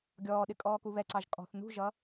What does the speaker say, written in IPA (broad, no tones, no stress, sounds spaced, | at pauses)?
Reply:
ɡʲ ɔː ɗ ɪ kʼ ɔː k u β ɛ ǀ ɑ ʒ kʼ ɔ̤ θ n ṳ ʒ ʌ